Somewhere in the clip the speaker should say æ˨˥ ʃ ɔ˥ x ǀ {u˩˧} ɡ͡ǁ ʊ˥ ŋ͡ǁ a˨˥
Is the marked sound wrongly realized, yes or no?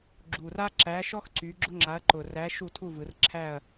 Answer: yes